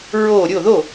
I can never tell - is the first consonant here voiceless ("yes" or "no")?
no